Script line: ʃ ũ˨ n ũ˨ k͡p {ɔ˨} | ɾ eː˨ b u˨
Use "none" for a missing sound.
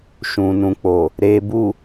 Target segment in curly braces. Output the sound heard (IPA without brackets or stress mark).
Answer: o˨